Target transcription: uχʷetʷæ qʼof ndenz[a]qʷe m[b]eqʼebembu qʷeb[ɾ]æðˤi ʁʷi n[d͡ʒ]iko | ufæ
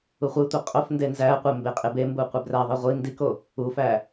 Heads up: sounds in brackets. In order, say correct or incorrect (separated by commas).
incorrect, correct, incorrect, incorrect